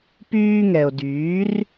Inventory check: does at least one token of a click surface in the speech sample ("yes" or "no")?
no